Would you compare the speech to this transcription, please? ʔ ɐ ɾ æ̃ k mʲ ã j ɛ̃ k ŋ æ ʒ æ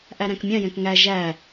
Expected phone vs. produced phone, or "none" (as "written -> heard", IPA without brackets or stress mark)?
ɐ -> æ